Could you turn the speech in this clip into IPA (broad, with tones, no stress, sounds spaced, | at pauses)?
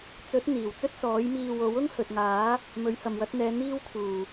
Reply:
t͡s ɵ˨˥ t̚ n̪ iː˨˩ w t͡s ɵ˥ t̚ s ɔː˨˥ j m iː˧ w o˨˥ w ʊ˥ ŋ h ɵ˨ t̚ ŋ aː˨˥ | m ɵ˨˥ ɥ h ɐ˨ m w ɐ˨˥ t̚ n̪ ɛː˨˧ n̪ iː˥ w kʰ uː˨˩